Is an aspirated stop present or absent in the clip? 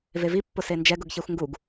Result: absent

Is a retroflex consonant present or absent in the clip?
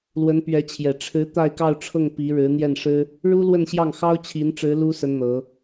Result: present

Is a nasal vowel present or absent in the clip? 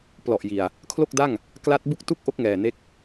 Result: absent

